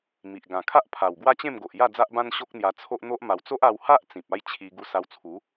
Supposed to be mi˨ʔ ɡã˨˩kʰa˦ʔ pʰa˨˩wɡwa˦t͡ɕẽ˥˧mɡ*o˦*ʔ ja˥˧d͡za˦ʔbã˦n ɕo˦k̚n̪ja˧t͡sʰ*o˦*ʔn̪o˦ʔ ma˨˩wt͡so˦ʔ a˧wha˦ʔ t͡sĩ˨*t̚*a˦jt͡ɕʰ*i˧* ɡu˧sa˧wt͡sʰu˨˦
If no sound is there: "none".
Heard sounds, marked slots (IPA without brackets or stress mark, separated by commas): o˨, o˦, p̚, i˧